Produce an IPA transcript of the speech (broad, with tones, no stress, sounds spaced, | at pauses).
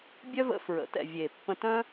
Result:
bʲ œ˦ v ə̰˧ f ɹ ə̰˨˦ t ɛ̰˨ vʲ e˨ pː ə̃˧ t œ̃˦